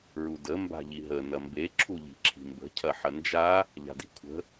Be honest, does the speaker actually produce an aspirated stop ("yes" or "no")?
yes